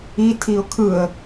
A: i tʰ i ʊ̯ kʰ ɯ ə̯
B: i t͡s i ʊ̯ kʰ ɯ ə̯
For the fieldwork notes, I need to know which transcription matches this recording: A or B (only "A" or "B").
A